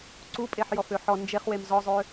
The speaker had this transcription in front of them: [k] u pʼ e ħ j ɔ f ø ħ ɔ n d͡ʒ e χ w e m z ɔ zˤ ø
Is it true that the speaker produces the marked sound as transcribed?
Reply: no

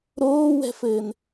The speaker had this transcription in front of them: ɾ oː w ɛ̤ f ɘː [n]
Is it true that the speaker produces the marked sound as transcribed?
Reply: yes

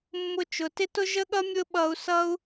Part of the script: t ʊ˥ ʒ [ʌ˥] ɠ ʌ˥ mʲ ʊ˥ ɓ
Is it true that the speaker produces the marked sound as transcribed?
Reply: no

